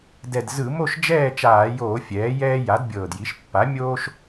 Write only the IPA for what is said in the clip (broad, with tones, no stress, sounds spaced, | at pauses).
d ɛ˨˩ d z ɯ˧˩˧ m o˥˨ ʃ d͡ʒ ɛː˥˨ t͡ʃ aː˧˩˧ j oː˧˩˧ fʲ ɛː˩˥ j ɛː˦ j a˩˥ d bʲ ɤː˨˩ d j i˩˥ ʃ pː a˩˥ mʲ oː˦ ʃ